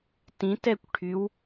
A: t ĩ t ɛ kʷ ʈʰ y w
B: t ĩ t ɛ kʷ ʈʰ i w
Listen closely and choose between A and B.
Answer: A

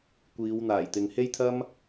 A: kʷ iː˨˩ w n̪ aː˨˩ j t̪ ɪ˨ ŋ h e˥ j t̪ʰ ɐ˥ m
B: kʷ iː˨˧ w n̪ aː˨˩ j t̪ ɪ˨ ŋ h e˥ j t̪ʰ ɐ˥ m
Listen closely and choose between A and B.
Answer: B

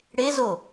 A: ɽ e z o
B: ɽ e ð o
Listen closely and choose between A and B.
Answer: A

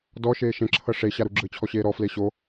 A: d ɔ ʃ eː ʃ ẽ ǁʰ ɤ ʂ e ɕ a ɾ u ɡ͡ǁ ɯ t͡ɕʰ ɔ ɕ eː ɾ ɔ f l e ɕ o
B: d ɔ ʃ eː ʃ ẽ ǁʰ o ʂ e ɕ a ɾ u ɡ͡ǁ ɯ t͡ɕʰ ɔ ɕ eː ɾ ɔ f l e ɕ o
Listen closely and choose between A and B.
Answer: A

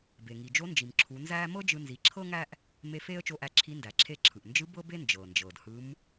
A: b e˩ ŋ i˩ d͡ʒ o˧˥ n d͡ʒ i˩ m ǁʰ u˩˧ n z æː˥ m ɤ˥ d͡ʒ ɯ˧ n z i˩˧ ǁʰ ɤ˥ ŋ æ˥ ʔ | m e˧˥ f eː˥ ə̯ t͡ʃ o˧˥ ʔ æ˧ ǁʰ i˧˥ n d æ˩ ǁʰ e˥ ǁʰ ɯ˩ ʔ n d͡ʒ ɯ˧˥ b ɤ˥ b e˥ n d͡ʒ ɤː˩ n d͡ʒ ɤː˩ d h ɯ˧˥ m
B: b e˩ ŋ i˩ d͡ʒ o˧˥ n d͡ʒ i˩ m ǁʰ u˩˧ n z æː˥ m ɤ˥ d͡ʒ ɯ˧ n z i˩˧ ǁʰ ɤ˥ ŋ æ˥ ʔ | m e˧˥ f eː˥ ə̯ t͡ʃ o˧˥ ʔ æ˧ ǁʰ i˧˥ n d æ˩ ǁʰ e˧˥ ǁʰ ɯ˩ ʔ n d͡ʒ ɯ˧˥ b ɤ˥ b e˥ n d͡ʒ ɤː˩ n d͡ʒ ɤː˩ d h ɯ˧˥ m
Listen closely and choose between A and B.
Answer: B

